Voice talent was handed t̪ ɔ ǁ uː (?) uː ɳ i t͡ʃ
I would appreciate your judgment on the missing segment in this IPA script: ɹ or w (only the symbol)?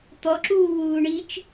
w